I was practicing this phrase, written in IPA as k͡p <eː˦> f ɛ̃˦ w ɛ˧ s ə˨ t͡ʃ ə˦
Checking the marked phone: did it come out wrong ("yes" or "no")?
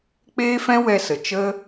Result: no